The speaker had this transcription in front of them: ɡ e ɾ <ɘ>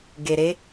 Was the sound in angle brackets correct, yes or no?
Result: no